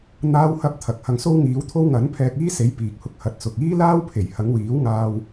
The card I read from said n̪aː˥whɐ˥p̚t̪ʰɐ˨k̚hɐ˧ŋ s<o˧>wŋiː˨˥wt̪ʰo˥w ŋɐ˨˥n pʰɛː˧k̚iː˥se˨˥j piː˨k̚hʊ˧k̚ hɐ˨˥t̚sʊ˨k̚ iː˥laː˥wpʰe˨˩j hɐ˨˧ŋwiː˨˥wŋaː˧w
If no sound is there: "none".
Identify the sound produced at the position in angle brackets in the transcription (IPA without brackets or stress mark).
o˥